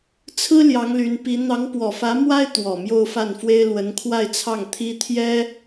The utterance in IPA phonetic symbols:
t͡sʰɹ̩˥ ljɑ˧˥ŋly˧˥npi˧˥ n̪ɑ˧˥ŋpwɔ˨˩fä˧˥mwa˥ɪ̯ t̪wɔ˨˩mjo˥˧ʊ̯fa˥˩nfwe˥ɪ̯ lwə˧˥nkʰwa˥˧ɪ̯t͡sʰɑ˥˩ŋ t̪ʰi˥t̪ʰjɛ˥

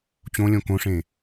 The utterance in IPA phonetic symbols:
t͡ɕõlʲõ kõʂẽ

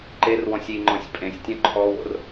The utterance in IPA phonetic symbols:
ǃerwɔ̃sʲ iŋ͡ǃɔ̃sʲ pʼẽsʲtʲɔ̃ ǃʰɔwo̰r

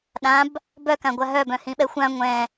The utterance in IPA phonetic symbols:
ɗãb | bœkãɡʷa ɦœbœ̃hĩɓɛ xʷã ŋʷɛ̃

